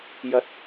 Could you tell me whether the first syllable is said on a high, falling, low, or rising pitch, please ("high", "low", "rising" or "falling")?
low